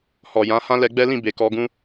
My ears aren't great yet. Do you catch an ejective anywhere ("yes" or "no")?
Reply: no